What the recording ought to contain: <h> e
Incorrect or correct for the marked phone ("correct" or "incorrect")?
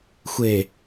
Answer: incorrect